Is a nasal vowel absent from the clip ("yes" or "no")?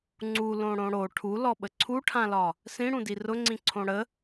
no